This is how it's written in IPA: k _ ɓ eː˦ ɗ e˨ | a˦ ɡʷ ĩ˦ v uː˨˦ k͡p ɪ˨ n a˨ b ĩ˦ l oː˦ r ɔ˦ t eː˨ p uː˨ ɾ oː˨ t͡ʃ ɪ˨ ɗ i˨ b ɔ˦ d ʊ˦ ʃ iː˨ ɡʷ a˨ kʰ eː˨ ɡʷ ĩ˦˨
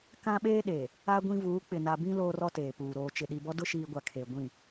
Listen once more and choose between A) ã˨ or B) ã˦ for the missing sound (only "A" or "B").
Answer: B